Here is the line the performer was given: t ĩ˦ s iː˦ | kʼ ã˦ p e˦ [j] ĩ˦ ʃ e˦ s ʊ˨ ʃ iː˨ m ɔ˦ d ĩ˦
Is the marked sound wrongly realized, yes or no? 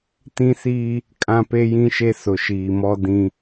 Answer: no